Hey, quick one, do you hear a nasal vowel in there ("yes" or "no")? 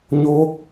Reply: no